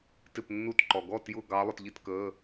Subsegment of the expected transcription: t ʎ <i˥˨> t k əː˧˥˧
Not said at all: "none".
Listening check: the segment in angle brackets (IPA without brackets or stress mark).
i˥˨